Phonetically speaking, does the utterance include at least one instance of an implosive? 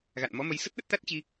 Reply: yes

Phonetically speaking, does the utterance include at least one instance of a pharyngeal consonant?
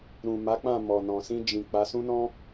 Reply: no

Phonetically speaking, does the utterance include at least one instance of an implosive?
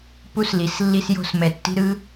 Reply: no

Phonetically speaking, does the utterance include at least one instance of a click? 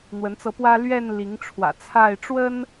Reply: no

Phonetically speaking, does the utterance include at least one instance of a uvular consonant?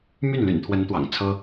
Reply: no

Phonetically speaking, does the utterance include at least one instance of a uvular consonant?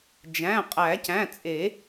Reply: yes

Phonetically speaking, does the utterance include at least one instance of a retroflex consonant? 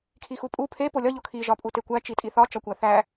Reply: no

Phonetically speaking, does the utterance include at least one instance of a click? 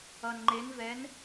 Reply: yes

